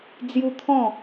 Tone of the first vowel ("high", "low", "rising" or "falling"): high